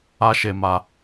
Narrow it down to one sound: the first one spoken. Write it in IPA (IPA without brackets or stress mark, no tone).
a